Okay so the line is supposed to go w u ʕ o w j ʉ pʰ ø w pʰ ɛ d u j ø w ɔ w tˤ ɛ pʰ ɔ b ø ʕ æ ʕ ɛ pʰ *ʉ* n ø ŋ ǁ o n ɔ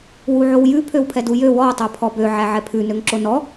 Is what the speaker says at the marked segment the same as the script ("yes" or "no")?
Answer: yes